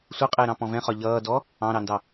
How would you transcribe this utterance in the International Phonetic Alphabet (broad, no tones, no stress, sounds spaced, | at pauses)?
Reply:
sʷ ʌ qʼ ɪː ɾ ɑ̃ p ɔ̃ v ɛ̃ χ ɒ ʎ ʌː d ɔ | ɑ̃ ɾ ɑ n d ɑ